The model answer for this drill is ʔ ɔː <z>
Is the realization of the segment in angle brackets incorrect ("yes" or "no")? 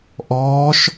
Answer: yes